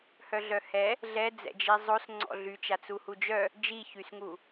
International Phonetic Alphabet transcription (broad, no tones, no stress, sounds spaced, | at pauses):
h œ ɮ œ h ɛ | ɮ ɛ d͡z ɛ̰ d͡ʒ i zˤ o s ŋ͡ǀ ɔ̰ ɮ y t͡ʃ a t͡s u h u d͡ʒ œ | d͡ʒ i ç y s ŋ u